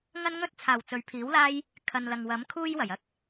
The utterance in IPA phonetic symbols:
ŋɐ˥nŋɵ˥t̚t͡sʰaː˨˩w t͡sɵ˨˥ɥpʰiː˨˥wlaː˥j | kʰɐ˨nlɐ˨ŋwɐ˨˥mkʰuː˥j wɐ˨˩jɐ˥k̚

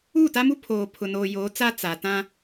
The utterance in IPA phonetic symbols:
u˦˨ta˦mu˦pʰoː˨ pʰʊ˨noː˨ joː˨˦t͡sa˦ t͡sa˨ tã˦

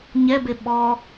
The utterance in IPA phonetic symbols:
ɲɛbe ɓɔ

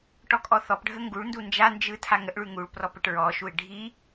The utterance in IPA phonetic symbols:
ʈɔkʼɔθɔpɖʱə ŋɡuɭndu nd͡ʒand͡ʒɯ tʰaŋəʔɭʉ ŋuɭ prɔpəʈɹɔʃuɪ̯ ɖʱi

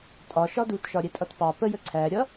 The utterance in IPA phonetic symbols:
tʼɒʃɒ dutʃɒɾʲɛtʼʌt pɑ pəjə ǀʰæɾʲʌ

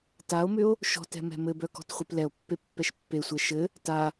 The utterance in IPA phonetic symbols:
tao̯mʏo̯ | ʃɔ̤tɛ̤ mɛ̤mɘbœ kɔ̤tχʷeplɛo̯pːe pːɛʃpːesʷɛ ʃɘ | ta

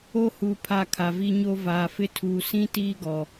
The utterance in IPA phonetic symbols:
o˦hu˨ pʰa˦˨kʰa˨vi˦ɲo˦ vaː˨fɪ˦tʰuː˨ sĩ˦ tiː˦ɡɔ˨

